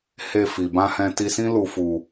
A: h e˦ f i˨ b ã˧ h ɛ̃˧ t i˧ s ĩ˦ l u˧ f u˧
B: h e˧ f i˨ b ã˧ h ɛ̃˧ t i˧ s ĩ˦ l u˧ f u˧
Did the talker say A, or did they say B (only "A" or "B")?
B